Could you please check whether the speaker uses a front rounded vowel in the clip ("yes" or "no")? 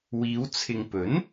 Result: no